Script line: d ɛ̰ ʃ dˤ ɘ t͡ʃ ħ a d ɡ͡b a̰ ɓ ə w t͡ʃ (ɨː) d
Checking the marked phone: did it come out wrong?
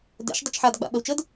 yes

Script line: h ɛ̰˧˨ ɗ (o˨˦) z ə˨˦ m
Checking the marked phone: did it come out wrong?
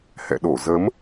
yes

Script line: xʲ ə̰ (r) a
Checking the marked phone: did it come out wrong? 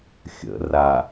no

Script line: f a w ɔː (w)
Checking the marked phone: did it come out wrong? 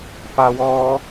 yes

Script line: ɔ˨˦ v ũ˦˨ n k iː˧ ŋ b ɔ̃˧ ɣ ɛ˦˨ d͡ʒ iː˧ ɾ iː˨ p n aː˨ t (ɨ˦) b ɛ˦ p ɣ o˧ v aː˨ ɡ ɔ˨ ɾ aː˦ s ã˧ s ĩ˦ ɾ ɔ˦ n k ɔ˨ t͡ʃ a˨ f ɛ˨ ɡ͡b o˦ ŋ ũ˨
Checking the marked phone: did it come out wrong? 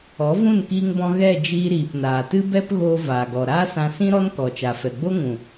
no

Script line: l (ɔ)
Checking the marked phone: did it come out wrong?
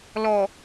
no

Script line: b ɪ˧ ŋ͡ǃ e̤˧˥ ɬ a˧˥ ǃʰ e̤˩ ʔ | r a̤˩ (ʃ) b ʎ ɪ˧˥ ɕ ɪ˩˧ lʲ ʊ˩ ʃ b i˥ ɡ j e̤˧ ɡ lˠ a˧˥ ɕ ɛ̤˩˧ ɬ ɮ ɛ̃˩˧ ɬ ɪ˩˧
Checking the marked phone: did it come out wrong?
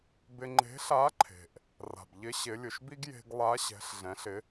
yes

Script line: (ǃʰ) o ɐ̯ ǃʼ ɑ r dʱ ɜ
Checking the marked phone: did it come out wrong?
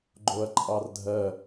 yes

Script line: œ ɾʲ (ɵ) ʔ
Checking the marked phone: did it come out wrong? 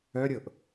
yes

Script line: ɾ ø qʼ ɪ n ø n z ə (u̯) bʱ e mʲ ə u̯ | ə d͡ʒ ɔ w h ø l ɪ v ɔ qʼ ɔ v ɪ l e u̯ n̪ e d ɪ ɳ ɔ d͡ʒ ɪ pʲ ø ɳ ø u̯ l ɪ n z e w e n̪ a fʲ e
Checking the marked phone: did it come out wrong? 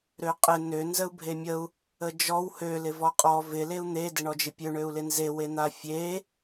no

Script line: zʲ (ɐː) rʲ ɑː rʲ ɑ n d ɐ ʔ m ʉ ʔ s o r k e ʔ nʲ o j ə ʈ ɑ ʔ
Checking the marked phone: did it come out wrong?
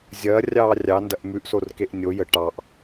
no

